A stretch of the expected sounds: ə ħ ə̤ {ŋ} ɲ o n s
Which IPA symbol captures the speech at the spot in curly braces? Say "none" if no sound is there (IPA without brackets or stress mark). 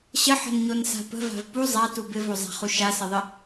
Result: n